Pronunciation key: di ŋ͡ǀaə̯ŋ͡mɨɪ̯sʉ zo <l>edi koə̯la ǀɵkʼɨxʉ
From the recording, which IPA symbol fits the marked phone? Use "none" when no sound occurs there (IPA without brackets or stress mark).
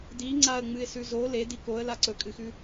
l